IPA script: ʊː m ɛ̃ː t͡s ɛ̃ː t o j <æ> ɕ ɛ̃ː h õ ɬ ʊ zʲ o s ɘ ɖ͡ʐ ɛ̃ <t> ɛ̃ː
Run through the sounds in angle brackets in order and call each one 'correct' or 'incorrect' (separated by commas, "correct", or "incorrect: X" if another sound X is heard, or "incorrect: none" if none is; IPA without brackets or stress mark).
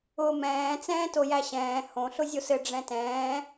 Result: correct, correct